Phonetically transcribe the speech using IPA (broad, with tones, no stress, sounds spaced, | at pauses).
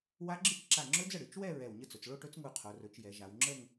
w a˦˥ ɡ͡ǁ ɨ˥˧ t͡ʃ ǁ a˧˩ ŋ͡ǁ ɵ˦˥ d͡z ə˥˩ ɽ ɨ˩˧ t͡ʃ w ɛ˥˧ ɹ ɛ˧˩ w ɲ ə˥˧ t͡s ɵ˩˧ t͡s ɭ o˥˧ ʈ ɵ˦˥ t͡s ŋ u˧˩ qʰ o˩˧ r ɵ˩˧ t͡ʃ j ɛ˩˧ ʒ a˩˧ w ŋ͡ǁ ə˥˧ ŋ